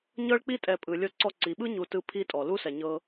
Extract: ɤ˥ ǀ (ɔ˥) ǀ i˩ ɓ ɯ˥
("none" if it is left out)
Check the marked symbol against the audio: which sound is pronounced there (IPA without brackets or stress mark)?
ɔ˥